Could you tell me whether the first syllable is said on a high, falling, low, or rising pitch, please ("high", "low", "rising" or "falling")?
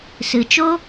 low